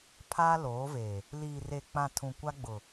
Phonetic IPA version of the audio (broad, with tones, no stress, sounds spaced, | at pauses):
pʰ aː˦ l oː˨˦ v e˨ | l iː˨ r e˨ k͡p ã˨ tʰ ũ˨ kʷ a˦ ɡ͡b ʊ˨